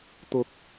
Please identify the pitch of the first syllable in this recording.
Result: low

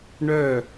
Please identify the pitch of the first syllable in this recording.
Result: falling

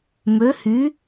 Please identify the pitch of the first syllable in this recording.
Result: rising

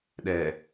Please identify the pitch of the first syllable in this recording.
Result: low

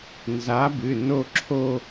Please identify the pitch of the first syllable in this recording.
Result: rising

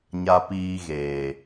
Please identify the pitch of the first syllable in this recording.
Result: high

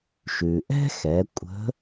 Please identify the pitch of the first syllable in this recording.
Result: low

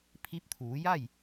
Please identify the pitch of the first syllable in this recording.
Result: rising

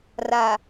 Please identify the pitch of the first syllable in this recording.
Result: low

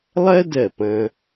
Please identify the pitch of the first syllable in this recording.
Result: high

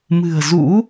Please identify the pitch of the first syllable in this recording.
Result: low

